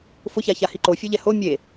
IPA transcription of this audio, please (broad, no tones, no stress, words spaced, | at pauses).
fʊça çahiǃofʲo ʎɛho mʲe